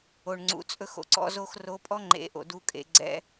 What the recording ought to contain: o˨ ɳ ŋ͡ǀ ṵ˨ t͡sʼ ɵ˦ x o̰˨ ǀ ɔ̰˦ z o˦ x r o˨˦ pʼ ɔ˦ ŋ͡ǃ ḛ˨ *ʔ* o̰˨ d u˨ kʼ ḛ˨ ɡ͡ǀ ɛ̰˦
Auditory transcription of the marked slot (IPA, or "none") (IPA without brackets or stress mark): ʔ